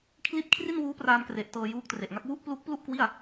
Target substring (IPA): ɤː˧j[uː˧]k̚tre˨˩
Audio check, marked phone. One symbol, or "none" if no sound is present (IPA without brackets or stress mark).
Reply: uː˦˥